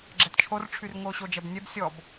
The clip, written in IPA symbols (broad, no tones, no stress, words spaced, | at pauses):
ɡ͡ǁɛtt͡ʃʰorʈ͡ʂʰyr ŋoɕod͡ʒɛbnʲɛb sʲɔb